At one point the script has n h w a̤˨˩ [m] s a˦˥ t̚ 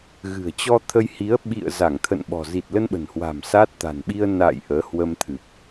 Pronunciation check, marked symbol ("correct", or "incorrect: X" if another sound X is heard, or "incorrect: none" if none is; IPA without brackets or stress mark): correct